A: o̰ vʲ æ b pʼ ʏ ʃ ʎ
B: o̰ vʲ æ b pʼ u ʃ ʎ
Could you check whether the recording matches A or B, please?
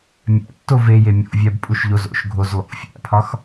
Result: B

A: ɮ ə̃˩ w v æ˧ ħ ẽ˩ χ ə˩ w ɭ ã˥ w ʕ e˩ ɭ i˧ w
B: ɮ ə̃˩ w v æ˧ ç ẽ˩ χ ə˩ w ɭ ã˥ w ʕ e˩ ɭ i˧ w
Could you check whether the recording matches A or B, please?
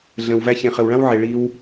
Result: B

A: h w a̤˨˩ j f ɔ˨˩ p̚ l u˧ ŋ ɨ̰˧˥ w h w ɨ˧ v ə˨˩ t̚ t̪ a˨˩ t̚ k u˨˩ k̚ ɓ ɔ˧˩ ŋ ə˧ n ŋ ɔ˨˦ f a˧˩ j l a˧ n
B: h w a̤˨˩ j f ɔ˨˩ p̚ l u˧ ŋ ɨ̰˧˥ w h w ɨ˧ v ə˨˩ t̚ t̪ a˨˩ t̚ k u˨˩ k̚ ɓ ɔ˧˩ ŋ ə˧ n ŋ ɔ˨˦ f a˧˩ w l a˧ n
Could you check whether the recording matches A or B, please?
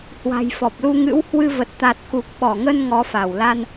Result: B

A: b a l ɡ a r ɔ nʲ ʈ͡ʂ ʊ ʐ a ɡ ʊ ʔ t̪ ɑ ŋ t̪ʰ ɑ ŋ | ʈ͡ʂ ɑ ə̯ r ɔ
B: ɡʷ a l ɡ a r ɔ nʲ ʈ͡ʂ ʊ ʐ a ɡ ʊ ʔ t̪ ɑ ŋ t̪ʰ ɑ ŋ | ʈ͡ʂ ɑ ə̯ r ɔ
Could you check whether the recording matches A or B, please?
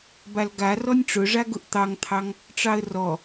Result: A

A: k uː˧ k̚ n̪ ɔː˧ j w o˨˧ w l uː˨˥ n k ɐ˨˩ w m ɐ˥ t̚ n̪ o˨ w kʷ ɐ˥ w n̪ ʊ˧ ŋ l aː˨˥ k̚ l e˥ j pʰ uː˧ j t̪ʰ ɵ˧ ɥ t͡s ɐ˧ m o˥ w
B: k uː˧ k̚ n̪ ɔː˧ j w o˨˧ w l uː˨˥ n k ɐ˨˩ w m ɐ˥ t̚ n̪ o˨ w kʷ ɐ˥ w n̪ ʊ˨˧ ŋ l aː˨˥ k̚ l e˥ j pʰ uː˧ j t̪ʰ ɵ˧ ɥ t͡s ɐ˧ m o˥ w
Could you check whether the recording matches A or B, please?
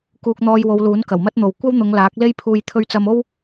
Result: B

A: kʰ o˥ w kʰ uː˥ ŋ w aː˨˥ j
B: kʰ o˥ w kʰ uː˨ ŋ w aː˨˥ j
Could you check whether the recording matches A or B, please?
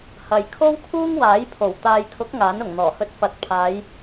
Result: A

